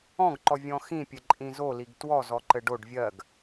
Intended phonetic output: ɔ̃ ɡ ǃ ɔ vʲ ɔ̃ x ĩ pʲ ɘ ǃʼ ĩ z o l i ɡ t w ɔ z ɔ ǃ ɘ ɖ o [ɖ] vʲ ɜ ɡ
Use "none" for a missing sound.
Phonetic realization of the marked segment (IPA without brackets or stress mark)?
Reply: ɖ